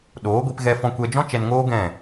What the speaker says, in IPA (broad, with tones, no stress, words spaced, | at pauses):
ɗoː˨˦ɡʷi˧p ɣɛ˧fɔ̃˧kʷɛ˧d͡ʒɔ̃˦ t͡ʃɛ˧nŋoː˦ ɡɛ̃˦˨